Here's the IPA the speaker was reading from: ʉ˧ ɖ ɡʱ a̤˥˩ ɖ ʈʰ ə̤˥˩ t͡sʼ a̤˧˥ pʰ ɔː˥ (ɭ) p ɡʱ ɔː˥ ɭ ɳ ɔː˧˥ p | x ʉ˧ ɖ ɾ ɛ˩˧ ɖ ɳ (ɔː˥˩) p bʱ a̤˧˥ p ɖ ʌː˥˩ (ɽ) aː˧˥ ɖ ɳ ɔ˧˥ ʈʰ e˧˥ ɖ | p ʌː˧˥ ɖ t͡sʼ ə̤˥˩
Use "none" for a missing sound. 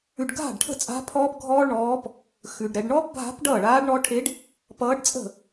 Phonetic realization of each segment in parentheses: none, ɔː˥, ɭ

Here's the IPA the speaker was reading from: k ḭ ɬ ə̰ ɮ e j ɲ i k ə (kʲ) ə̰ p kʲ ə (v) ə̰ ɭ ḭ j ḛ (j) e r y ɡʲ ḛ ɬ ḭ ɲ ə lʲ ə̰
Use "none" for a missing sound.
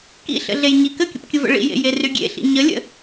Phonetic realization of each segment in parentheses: kʲ, v, j

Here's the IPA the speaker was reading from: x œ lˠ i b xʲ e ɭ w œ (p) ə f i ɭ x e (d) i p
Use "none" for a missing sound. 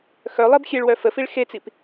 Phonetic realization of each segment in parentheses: f, t͡s

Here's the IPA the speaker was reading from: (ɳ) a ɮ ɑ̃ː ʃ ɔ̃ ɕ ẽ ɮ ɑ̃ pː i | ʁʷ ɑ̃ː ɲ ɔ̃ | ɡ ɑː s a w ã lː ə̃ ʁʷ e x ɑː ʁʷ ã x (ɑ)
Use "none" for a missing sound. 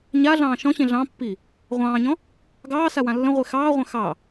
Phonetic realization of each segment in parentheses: ɲ, ɑ

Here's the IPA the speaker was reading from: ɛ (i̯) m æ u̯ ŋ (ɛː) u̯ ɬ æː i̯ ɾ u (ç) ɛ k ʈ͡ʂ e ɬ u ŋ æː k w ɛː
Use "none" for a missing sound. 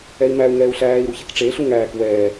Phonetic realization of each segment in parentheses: i̯, ɛː, ç

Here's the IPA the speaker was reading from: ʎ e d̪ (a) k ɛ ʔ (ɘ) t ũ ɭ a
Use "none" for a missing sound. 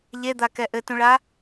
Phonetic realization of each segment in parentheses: a, ɘ

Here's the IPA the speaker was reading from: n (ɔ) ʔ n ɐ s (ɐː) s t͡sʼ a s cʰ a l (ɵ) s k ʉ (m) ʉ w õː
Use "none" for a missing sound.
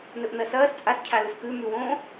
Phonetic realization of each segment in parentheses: ɵ, ɐː, ɵ, m

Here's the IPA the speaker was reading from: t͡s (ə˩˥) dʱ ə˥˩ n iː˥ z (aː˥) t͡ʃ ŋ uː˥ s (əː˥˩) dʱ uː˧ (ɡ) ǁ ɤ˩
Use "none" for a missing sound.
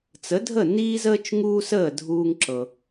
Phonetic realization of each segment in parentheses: ə˩˥, əː˥, əː˥˩, ŋ

